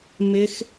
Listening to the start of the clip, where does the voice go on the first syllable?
high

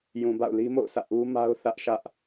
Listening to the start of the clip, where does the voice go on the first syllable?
low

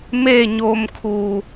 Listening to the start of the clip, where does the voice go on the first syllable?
falling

